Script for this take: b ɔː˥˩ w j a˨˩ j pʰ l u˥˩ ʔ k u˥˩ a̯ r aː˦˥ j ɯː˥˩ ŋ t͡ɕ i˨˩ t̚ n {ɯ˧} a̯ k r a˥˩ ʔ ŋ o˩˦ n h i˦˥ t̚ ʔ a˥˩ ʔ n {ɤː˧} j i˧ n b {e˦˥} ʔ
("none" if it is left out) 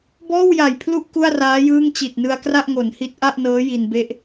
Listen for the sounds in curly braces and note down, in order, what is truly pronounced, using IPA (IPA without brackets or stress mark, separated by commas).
ɯ˧, ɤː˦˥, e˦˥